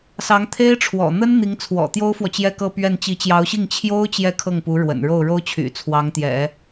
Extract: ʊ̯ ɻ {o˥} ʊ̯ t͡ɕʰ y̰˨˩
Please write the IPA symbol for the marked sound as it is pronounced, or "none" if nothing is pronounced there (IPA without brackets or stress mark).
o˥